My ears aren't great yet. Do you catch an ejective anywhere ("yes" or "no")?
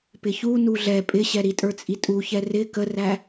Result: yes